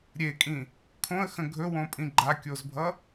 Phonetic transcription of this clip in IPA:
ɾʲ e kʼ ĩ | kʰ õ ə̯ x ə̃ ɡʱ ɵ w õ pʼ ĩ ɡ͡ǃ a kʲ o z bʱ ʌ

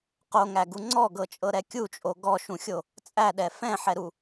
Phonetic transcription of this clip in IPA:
q o ŋ æ ɡ u ŋ͡ǀ ɔ ɡ ɤ t͡ʃʼ ɤ ɾ ɛ kʲ u t͡ʃʼ o ɡ ɔ ʃ ũ xʲ o | t͡sʼ æ ɗ ɛ f ɛ̃ ħ ɛ ɾ u

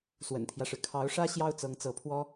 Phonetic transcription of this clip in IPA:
s w ə̰˨˩ n t̪ʰ j ä˦ ʂ ɻ̩˩ kʰ ɑ˧˥ ʊ̯ ʂ ä˥ ɕ j ɑ˥ ʊ̯ t͡s ɤ˧˥ ŋ t͡s ɤ˧˥ pʰ w ɔ˥

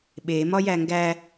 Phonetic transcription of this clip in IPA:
ɓ e m ɒ j æ ŋ ɡ æ

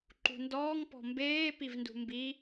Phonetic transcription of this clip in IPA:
ǃ ṳ n d ɔː ŋ p ɔ̤ m b eː p i v n d ṳ m b i

